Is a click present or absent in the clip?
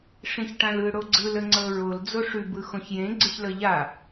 present